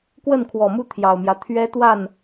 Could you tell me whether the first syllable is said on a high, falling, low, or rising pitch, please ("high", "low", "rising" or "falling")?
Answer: falling